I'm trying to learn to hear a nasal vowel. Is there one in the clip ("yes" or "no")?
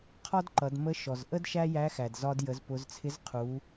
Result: no